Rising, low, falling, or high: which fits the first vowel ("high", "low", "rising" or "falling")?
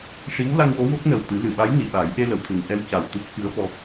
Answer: rising